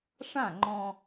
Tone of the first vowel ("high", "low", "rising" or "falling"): falling